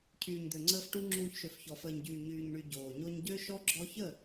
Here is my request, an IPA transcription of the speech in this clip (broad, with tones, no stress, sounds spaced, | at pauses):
cʰ yː˨ ɲ d̪ ø˨ ŋ͡ǀ əː˧ f ʈ u˧ ŋ͡ǁ uː˧ ç ʃ ø˨ f ç ɔ˨ f əː˨ ɲ ɟ yː˨ ɲ yː˨ ɲ ɳ y˨ ɟ oː˨ ɲ o˧ ɲ ɟ ø˦ ʃ ɔ˦ ɡ͡ǁ ɔ˧ ç ə˦˨